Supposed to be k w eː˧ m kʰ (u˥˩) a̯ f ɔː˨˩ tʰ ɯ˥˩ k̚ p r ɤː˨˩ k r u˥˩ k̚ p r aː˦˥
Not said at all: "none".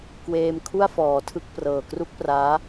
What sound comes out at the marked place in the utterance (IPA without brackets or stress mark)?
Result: u˥˩